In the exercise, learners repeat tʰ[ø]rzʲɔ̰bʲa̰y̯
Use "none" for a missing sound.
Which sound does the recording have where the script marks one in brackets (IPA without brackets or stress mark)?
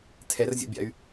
ɛ